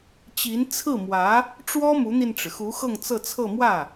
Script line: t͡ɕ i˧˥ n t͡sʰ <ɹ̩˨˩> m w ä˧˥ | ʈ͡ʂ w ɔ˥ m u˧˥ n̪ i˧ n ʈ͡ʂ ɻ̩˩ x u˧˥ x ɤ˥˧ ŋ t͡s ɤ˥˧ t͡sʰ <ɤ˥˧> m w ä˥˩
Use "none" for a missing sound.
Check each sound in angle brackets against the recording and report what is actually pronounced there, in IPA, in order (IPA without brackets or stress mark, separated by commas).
ɹ̩˥˩, ɤ˥˧